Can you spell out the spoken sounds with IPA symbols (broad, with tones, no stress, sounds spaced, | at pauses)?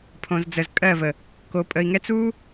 pʰ õ˨ z d͡z ə˨ z kʼ ɜ˦˨ v ə˨ | k o˨ pʼ ə˨ i̯ ŋ ɛ˦ t͡s u˦